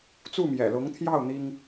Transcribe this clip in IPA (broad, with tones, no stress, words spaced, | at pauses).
t͡su˥˩mjɛ̰˨˩lʊ˧˥ŋt̪ʰjɑ˥˩ʊ̯ n̪i˥ŋ